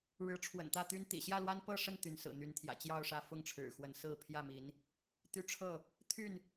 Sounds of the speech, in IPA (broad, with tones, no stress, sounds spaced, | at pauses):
ɻ ɻ̩˨˦ ʈ͡ʂʰ w ə̰˨˩ n t̪ ä˥˨ t̪ y˦ n t̪ ḭ˨˩ ɕ j ä˥˨ l w a˦ n p ɤ˥˨ ʂ ə˥˨ n t̪ y˨˦ n s ɹ̩˨˩ n̪ y˨˦ n t̪ʰ j ä̰˨˩ t͡ɕ j ɑ˥˨ ʊ̯ ʂ ä˥˨ f ʊ˥˨ ŋ ʈ͡ʂʰ ɻ̩˨˩ x w ə˨˦ n s ɹ̩˥˨ pʰ j ä˥˨ m i˨˦ n | t̪ y˦ ʈ͡ʂʰ ɤ˥˨ | t̪ʰ y˥˨ n